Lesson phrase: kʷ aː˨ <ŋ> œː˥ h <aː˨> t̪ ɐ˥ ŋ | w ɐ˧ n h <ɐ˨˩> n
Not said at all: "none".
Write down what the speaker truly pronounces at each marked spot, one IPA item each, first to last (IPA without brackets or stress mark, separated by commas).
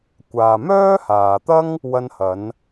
m, aː˨, ɐ˨˧